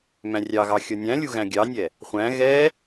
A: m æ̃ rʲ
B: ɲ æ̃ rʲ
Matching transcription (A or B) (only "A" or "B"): A